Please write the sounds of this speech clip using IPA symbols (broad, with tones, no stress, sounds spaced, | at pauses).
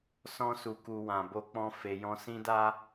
s ɔ̃˦ s u˧ k u˧ w ã˧ b o˦ k͡p ɔ̃˦ f e˧ j ɔ̃˦ s ĩ˦ d a˦